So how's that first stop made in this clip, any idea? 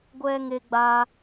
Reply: plain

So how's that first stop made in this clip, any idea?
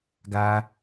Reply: plain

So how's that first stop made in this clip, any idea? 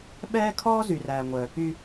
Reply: implosive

